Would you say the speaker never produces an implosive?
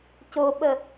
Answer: no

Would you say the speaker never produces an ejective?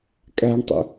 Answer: no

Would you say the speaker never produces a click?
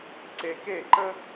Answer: no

